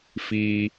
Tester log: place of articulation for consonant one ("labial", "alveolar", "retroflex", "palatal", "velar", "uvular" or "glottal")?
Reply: labial